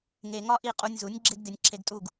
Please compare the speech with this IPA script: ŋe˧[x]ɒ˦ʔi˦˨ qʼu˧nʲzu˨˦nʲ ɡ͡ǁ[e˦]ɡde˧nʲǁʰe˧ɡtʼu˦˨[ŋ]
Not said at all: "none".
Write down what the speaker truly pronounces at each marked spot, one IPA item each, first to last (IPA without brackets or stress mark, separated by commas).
ŋ, e˦, ɡ